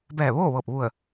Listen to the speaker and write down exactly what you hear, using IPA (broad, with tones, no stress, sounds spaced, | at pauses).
b ɛː˧˩ ʋ oː˥˨ ʋ ɤː˧˩ p̚ ʋ u˧˩ ə̯